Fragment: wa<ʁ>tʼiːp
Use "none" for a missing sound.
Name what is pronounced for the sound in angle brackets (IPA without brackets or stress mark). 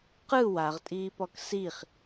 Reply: ʁ